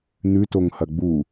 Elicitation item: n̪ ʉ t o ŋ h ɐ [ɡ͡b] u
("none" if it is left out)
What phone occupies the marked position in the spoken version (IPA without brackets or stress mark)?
ɡ͡b